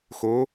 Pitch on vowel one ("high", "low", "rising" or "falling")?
rising